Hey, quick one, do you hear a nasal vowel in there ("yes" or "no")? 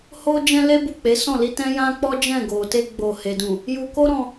yes